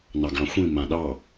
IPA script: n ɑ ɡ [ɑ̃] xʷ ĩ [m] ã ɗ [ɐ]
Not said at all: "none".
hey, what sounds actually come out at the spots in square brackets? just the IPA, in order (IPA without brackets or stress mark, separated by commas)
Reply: ɑ̃, m, ɑ